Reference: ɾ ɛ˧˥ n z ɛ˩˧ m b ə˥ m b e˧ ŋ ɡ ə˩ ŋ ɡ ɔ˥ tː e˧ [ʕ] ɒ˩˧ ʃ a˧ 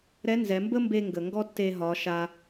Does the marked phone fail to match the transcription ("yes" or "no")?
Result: yes